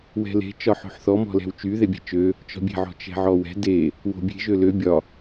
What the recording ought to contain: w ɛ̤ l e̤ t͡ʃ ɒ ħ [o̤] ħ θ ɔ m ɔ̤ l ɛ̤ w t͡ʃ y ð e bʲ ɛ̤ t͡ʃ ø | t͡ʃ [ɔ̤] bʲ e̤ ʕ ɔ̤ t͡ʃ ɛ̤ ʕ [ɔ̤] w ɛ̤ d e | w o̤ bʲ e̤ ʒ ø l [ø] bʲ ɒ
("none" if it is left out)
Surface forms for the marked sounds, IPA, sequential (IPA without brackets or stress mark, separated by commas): o̤, ɔ̤, ɔ, ø